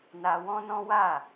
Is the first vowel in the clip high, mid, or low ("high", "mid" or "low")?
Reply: low